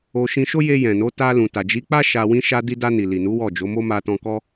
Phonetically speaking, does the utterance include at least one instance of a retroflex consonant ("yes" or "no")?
no